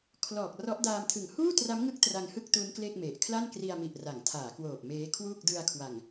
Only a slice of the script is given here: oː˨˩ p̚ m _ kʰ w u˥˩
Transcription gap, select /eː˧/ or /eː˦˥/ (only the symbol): eː˦˥